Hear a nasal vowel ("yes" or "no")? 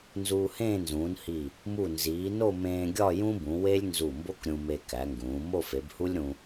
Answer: yes